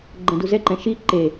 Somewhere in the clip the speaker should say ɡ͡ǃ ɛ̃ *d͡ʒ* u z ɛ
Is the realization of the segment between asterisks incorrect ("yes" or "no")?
yes